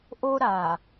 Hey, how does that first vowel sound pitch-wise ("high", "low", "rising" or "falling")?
high